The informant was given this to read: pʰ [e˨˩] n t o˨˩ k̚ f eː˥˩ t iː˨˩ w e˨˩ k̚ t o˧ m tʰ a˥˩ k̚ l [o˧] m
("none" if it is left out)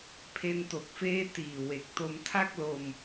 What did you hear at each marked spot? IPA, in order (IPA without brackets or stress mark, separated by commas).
e˦˥, o˧